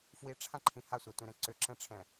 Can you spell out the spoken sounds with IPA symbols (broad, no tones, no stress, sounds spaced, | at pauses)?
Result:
f w i ʈ͡ʂʰ ã ǃʰ ĩ h a sʷ a tʷ ĩ ɾ ɛ̃ ǀ ʏ ǁ ɛ̃ ʈ͡ʂʰ ɛ̃